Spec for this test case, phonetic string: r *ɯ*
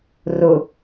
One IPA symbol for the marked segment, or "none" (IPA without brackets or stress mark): ʊ